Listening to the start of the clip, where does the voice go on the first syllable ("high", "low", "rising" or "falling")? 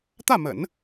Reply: falling